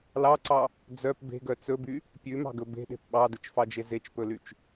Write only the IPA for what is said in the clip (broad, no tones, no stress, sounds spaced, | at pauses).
l ɑ ǀ ɑ | d͡z œ p b e̤ ɡ œ t͡s ɵ b y | pʲ ʉ m ɑ̤ ɡ ɵ b e̤ ɗ e̤ p ɓ ɑ d ɵ t͡ʃ f ɑ d͡ʒ e z e t͡ʃ p ɵ l y t͡ʃ